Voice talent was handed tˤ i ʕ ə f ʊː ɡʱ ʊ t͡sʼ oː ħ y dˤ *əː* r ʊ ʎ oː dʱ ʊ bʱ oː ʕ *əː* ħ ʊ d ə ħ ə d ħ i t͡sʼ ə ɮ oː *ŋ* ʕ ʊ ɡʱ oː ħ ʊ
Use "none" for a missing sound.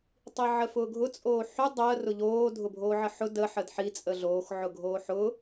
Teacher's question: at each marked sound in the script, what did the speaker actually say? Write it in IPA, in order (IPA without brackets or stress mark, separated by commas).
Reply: əː, ə, x